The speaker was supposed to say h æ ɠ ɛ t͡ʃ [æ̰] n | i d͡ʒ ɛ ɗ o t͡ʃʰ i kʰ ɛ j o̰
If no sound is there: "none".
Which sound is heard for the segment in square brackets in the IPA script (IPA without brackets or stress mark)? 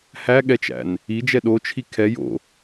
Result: æ̰